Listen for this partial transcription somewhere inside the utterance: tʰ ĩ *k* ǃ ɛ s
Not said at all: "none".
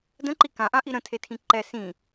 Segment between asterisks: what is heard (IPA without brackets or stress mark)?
none